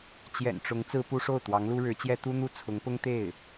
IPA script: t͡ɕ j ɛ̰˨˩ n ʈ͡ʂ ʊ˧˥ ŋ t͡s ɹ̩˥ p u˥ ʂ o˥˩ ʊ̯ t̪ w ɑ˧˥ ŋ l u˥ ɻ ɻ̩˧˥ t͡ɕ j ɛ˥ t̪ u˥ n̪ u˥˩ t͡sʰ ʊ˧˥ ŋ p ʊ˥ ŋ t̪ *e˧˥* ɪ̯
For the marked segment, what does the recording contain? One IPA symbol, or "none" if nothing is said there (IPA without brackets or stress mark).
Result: e˥˩